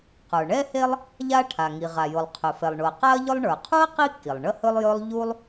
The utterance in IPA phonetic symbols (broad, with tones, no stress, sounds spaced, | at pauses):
q ə˞˩ ɳ ɛ˥ h e˥ lˠ | ʎ a˥ ʈʰ a˩ ŋ i˩ ʁ a˩ j ʊ˩ lˠ qʰ ɵ˩ f ɛ˩ lˠ ɳ ʊ˩ ɐ̯ q a˥ ɐ̯ ʎ ʊ˥ lˠ ɳ ə˞˩ qʰ u˥ ɐ̯ q i˥ kː i˩ lˠ ɳ ə˥ h ɵ˥ lˠ j ɵ˥ lˠ ʎ u˥ lˠ